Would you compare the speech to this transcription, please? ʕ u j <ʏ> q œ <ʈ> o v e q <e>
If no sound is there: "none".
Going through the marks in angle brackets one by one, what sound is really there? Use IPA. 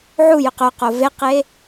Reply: ʏ, q, e

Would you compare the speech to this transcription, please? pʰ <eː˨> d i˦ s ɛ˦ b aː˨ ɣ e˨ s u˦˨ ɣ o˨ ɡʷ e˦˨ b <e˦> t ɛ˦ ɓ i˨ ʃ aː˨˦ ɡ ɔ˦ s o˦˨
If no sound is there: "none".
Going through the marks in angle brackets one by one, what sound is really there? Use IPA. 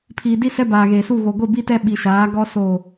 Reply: iː˨, i˦

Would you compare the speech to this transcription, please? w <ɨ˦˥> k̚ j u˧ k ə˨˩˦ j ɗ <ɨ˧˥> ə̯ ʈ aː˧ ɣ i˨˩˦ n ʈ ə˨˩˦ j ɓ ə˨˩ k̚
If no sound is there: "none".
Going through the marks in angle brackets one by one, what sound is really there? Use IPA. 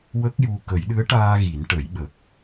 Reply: ə˦˥, ɨ˧˥

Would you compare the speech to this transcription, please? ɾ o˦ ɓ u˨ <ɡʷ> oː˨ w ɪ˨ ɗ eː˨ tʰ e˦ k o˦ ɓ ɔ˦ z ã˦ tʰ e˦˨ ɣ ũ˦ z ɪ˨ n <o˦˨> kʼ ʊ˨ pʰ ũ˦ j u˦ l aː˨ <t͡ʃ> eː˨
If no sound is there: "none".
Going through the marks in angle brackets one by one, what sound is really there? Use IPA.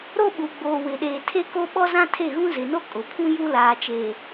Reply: ɡ͡b, o˦, t͡ʃ

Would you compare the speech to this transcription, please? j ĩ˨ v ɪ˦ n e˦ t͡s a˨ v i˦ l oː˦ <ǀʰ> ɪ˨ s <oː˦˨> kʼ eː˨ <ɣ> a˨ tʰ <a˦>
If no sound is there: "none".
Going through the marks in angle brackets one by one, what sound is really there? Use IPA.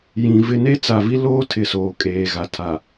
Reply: tʰ, oː˨, ɣ, a˨

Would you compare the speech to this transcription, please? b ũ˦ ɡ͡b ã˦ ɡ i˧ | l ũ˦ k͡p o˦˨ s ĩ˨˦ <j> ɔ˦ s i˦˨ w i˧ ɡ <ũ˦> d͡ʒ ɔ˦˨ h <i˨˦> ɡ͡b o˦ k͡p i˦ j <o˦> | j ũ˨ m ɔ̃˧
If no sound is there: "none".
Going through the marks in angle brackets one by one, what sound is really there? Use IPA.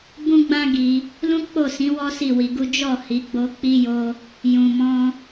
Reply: w, u˦, i˨˦, o˦

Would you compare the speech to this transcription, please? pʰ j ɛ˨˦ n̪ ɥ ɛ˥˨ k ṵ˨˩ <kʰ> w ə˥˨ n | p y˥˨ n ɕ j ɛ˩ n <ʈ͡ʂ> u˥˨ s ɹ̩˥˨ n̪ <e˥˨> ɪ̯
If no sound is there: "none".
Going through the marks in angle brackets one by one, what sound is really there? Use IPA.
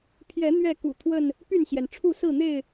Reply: t̪ʰ, ʈ͡ʂʰ, e˥˨

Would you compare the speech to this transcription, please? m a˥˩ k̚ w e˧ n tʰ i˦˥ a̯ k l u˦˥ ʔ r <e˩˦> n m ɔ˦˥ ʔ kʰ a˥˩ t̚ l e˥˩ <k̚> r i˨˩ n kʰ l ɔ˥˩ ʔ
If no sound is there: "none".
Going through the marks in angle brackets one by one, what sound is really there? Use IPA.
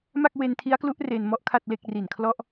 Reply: e˧, k̚

